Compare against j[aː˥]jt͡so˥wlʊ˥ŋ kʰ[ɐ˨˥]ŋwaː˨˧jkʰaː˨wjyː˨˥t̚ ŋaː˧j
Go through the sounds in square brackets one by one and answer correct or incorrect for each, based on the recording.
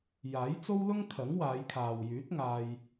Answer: incorrect: aː˨˥, correct

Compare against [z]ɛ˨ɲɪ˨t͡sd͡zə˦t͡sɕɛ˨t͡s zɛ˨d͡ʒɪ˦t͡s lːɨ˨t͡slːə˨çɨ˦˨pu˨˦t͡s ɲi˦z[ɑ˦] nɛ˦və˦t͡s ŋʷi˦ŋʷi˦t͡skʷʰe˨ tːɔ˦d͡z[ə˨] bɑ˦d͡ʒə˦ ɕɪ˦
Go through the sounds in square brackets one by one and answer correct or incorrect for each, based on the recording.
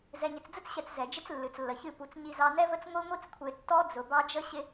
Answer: correct, correct, incorrect: ʊ˨

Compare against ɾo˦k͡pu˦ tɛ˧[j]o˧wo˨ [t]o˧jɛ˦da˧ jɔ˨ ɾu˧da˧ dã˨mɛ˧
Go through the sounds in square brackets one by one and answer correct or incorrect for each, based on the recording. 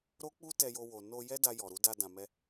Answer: correct, incorrect: n

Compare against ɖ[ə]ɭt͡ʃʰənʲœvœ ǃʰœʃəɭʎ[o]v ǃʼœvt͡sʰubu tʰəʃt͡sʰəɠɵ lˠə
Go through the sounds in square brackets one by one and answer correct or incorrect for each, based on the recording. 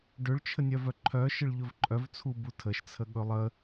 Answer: incorrect: ɵ, incorrect: ɵ

